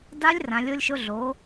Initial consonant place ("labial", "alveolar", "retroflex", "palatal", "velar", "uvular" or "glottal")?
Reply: alveolar